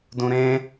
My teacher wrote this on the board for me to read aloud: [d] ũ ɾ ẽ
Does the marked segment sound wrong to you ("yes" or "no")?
no